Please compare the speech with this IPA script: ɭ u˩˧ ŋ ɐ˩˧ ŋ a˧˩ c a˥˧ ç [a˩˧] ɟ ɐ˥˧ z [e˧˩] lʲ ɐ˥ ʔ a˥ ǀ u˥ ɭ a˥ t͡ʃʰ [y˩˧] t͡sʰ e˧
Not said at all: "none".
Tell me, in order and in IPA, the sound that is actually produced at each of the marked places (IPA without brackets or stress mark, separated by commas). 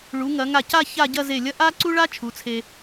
a˥˧, e˧˩, u˩˧